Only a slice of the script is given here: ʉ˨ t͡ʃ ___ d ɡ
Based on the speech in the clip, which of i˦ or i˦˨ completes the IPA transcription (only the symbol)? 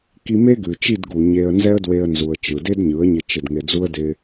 i˦˨